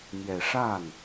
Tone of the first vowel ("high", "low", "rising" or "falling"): low